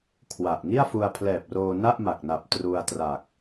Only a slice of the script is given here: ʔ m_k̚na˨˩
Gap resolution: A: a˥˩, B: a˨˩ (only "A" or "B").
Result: B